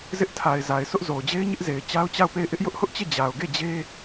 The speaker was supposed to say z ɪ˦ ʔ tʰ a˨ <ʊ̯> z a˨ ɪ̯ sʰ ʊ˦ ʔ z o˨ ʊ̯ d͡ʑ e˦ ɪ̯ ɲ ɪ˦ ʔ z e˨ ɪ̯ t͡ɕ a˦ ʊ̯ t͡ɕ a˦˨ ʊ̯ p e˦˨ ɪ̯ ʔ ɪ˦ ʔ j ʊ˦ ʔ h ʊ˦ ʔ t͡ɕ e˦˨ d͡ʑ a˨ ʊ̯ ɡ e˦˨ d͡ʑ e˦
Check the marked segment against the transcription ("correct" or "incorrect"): incorrect